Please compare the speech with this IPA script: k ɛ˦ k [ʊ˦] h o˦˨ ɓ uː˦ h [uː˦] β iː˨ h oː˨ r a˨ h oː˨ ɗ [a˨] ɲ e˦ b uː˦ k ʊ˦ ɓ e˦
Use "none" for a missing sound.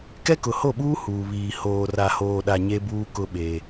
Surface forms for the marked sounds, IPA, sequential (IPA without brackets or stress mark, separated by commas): ʊ˨, uː˨, a˨